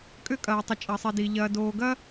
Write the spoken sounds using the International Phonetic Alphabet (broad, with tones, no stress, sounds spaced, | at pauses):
kʼ ʏ˥ kʼ ɐː˧ i̯ tˤ ə˧ t͡ʃʼ ɐ˧ sˤ i˧ d i˧ ʎ ɐː˧ d oː˧ ɡ ɐ˥